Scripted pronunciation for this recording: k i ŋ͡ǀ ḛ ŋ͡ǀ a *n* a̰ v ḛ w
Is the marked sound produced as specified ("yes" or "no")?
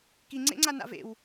yes